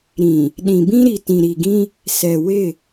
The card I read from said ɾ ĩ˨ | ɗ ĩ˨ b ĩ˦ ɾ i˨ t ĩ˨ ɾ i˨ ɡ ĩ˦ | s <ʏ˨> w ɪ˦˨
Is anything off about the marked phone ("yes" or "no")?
yes